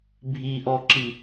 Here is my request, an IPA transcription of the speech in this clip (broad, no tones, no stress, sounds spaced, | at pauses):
bʱ i ʔ ɔ ǁ i